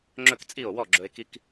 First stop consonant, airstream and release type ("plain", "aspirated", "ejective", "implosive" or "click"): click